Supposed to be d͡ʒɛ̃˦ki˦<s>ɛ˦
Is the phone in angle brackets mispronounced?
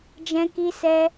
no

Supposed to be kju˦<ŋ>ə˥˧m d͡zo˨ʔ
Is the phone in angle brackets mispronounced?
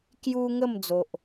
no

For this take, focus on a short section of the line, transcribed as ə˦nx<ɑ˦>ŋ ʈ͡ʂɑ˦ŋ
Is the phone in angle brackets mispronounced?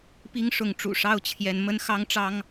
no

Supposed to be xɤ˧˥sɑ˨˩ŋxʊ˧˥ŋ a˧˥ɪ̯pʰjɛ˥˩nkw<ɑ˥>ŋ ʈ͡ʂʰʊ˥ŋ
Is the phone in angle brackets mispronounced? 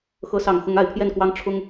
no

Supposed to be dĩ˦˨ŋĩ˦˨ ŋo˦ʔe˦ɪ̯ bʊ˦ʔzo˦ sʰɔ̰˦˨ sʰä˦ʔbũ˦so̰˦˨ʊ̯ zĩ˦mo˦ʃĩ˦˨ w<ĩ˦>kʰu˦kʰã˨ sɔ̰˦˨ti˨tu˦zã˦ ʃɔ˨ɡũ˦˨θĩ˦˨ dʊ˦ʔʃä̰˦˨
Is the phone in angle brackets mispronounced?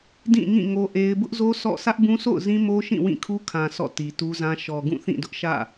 yes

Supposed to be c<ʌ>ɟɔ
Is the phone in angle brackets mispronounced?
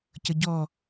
no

